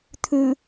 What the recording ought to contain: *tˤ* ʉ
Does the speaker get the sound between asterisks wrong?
yes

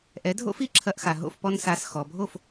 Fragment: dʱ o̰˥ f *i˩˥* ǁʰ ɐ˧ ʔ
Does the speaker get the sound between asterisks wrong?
no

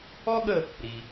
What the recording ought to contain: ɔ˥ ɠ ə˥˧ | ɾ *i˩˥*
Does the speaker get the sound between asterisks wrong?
yes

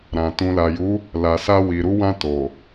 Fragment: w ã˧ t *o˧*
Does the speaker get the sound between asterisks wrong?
yes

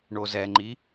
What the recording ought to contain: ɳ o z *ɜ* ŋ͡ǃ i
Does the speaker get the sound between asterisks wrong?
yes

